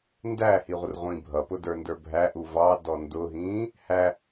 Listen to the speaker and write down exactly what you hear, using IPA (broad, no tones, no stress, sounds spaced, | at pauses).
n d æ h i ʁʷ ə r ʁʷ ĩː bʱ ʌ p ʊ d ə˞ n d ə˞ bʱ æ ʔ u v ɑ d ɔ n d ʊ ɦ ĩː | h æ